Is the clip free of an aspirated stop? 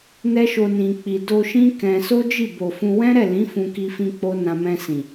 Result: yes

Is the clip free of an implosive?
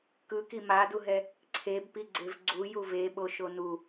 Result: no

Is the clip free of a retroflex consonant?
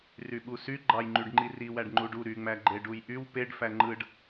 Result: no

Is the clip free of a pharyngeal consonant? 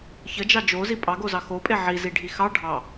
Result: no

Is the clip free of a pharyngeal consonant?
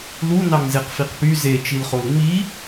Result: yes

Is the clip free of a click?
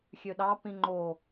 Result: no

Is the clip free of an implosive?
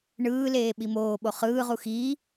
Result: no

